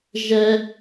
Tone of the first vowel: high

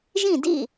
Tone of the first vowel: falling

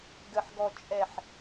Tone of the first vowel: low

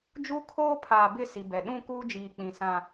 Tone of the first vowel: high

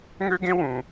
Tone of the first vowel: high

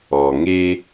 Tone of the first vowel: low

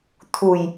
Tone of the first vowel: low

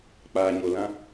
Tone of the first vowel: low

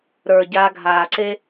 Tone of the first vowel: low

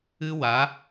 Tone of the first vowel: high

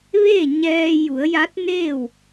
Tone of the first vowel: falling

